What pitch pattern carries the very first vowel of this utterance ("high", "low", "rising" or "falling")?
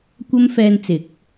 high